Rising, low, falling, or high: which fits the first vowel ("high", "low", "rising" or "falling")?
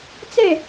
falling